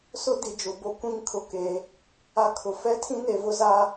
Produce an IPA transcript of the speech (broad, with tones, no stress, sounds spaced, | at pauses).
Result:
s ʊ˦ d i˨ d͡ʒ ʊ˨ b o˦ kʷ ĩ˦˨ ŋ kʰ ʊ˨ k e˨˦ | a˦ kʰ ʊ˨ f ɛ˦ tʰ ĩ˦ n e˨ v ʊ˦ z a˦